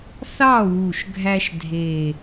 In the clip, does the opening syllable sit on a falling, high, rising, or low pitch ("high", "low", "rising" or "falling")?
falling